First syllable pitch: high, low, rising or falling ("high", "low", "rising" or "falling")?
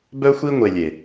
high